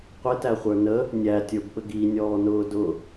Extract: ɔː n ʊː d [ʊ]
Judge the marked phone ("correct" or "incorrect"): correct